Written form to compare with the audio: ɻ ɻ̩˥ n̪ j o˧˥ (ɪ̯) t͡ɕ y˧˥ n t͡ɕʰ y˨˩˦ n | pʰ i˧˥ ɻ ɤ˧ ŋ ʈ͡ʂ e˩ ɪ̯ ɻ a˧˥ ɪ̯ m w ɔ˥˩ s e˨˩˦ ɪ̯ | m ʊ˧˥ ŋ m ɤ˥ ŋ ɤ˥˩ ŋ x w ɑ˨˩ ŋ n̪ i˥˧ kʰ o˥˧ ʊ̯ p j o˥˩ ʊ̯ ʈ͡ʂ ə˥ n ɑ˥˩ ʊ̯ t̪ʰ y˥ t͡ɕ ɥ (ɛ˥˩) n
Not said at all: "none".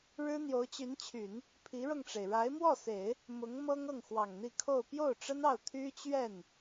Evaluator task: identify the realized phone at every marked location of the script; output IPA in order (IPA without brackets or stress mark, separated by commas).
ʊ̯, ɛ˥˩